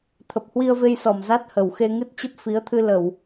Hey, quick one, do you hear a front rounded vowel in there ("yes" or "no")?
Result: no